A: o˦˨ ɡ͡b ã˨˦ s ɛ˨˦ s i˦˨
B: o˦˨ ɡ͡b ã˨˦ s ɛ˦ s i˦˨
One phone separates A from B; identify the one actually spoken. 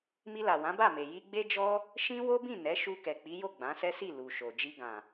B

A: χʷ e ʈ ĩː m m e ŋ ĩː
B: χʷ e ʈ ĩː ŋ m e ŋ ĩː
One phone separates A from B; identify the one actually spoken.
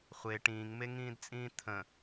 B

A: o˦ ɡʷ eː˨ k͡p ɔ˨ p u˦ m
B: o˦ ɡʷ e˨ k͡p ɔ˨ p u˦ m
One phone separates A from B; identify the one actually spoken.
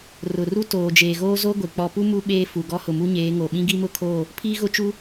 B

